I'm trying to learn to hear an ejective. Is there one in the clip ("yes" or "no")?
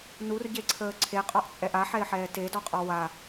yes